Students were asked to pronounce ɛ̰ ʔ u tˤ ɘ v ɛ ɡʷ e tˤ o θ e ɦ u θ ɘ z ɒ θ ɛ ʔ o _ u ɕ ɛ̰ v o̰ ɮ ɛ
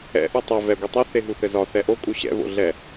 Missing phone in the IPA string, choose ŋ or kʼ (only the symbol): kʼ